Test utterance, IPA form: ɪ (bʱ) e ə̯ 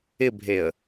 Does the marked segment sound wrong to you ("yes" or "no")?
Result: no